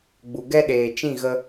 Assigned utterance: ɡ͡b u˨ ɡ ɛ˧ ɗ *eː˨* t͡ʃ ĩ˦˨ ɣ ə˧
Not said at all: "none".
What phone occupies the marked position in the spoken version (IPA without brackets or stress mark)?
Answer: eː˨